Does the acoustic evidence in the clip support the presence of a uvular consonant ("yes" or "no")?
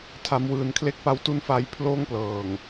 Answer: no